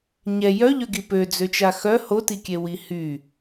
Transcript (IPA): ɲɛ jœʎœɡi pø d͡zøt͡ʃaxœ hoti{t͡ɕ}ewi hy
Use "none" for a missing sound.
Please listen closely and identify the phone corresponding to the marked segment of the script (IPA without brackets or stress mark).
kʲ